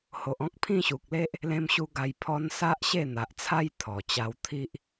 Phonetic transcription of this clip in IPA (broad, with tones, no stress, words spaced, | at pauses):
ho˨ʔɔ̃˦k̚ pʰĩ˥˧ɕu˨k̚le˦ʔ | lẽ˦mɕu˦ɡa˧jpʰɔ˦n sa˦ʔɕe˥˧n̪a˨ʔt͡sʰa˦j t̪ʰɔ˨˩t͡ɕa˧wt̪ʰi˦ʔ